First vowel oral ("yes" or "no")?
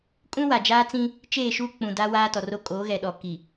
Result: no